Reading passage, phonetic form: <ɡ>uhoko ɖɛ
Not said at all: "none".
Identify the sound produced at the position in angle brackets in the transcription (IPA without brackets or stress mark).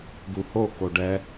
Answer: ɡ